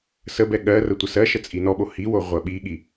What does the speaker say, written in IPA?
səbɛ ɠɜrə tʷəsɜʃə t͡sʼinɔɓo hiwo ʁʷɜɓiɠi

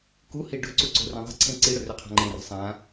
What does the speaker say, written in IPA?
kuhi ɖɵǀuǀo̤rẽ ðˤi̤ǀʰẽ ǀiɽɵrʏqʰa̤ ŋ͡ǃẽri̤ sˤã

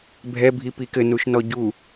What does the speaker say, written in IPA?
bʱɛ bʱipikɘ nuʃnɔɟu

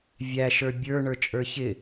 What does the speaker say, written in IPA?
vʲæʃə˞ bʲə˞ɳə˞t͡ʃʼə˞ çɪ

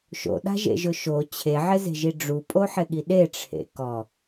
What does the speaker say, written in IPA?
ʃo̰ɗa̤ʒḛʒʊ ʃo t͡ɕʰeʕɪze̤ʒi ɖ͡ʐupʼoħɪɠi ɗeʈ͡ʂʰḛ kɔ

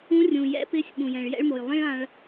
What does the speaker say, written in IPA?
ũ˧˥rʲũ˩jɛ̰˧˥pɪ˧˥sʲ ɓũ˩jɛ̃˩ɭ jɛ̰˥ɭmo˩j lˠĩ˥ɭã˧ɭ

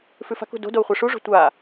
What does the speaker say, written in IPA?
fʉfa̤kṳ do̤dou̯ χʷaʂuʐo̤ tʷa

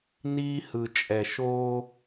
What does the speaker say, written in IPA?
niː˦hɯ˨t͡ʃʼɛ˨ ʃoː˦

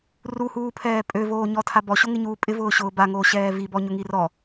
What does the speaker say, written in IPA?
ruhuːpʰɛː pʼøvoːɲɔtʰa bɔɕoŋɪɲuː pʼɪvʊːɕʊː baŋoːɕɛː vibɔɲʊŋi rɔ

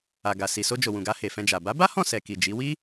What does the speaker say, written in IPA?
a˨ɡa˨ si˨so˧d͡ʒo˨ wũ˨ɡa˧ he˨fɛ̃˧d͡ʒa˨ ba˨˦ba˦hɔ̃˦˨sɛ˨ ki˨d͡ʒi˨˦ wi˦

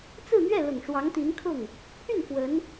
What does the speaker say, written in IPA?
t͡sɹ̩˥˧n̪ɥɛ˥˩lʊ˨˩ŋ ʂwɑ˧˥ŋt̪i˧˥nkʰʊ˥˩ŋ | pʰy˥˩n pwə˧˥n

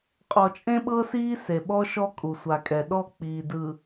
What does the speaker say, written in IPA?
qʼɔ˨t͡ʃʼẽ˦ɓɤ˦ siː˦se˨ɓɔ˦ ʃɔ˦kʼu˨ sʷa˨kʼɛ˨ɗɔ˦˨ k͡piː˨dɯ˨

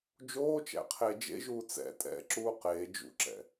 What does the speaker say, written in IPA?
d͡ʒoːt͡ʃæ̰qʰe d͡ʒḛʒuː t͡sɛ̰ tʼɛ̰ǁuː qeː d͡ʒṵǁɛ̰

